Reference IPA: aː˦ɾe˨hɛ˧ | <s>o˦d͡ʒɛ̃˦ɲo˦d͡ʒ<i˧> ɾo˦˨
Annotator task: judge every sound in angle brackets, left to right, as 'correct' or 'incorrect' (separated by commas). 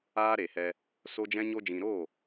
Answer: correct, incorrect